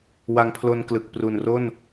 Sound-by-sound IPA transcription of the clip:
w a˧ ŋ pʰ l o˧ n k l ɯ˨˩ k̚ p r u˨˩ n r o˥˩ n

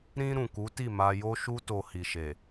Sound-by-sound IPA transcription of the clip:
ɾ ĩ˧ ɾ ũ˨ k u˨˦ t i˦˨ m a˧ j o˦ ʃ u˦ t o˧ h i˨ ʃ e˨

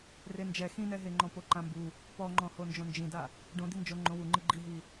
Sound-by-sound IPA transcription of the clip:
r e n d͡ʒ ɛ x ĩ n ɛ ɦ e ŋ͡ǃ ɔ̃ p o ǃ ã m b u | p ɔ ŋ͡ǃ ɔ̃ h o n d͡ʒ õ n d͡ʒ ĩ d a | ɖ õ d̪ i n d͡ʒ o ŋ͡ǃ õ w u ŋ͡ǃ ɨ ɡ͡ǃ i ɦ i

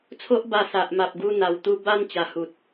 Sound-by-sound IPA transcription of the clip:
t͡sʰ o˦ ʔ b a˧ s a˨ ʔ m a˨ p̚ ɡ u˧ n̪ a˨˩ w t̪ u˧ b a˦ n t͡ɕ a˨˩ h u˨ t̚

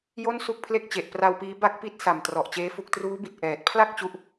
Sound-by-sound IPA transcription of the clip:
j o˥˩ n s u˥˩ k̚ pʰ l e˥˩ k̚ t͡ɕ e˨˩ ʔ p r a˧ w p iː˦˥ b a˦˥ k̚ p i˦˥ t̚ s a˨˩ m t r ɔ˨˩ ʔ t͡ɕ eː˦˥ f u˦˥ k̚ t r uː˦˥ b i˨˩ t̚ ʔ ɛː˨˩ t̚ pʰ l a˥˩ k̚ t͡ɕ u˦˥ ʔ

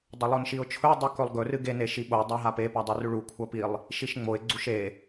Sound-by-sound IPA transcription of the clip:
dˤ ɐ lˠ o n ʃ i ʊ̯ t͡ʃʰ ɵ ɪ̯ dˤ u k ɵ lˠ ɡ ɵ r ɨ ɡ e n e ʃ i ɓ o dˤ a ɦ a p e p a dˤ u r ʉ ɭ u kʷʰ ɐ p i lˠ | ʃ i ʃ ŋ͡m o ɪ̯ ɡ͡ǀ u ʃ e

